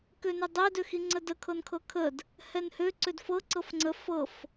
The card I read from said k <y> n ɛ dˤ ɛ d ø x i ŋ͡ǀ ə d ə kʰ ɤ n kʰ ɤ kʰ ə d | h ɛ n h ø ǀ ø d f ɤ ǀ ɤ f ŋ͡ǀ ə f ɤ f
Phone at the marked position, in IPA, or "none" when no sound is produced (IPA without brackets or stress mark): ø